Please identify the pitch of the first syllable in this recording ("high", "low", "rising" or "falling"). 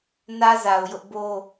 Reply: high